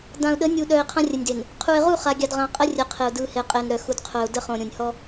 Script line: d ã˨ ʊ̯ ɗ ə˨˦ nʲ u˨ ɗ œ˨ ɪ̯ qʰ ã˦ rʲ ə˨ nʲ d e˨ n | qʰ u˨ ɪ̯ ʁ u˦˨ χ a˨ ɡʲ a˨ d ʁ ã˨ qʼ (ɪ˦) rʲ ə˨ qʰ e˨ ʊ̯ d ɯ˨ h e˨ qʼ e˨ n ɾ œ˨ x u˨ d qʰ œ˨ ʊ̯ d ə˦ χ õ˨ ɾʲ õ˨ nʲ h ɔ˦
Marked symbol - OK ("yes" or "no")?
no